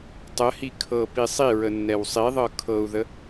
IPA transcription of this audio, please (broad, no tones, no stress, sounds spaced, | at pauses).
tˤ ə h i kʰ ɤ p i sˤ i ɹ ə nː ɛ w sˤ i ðˤ ɤ kʰ ɤ u̯ ð ə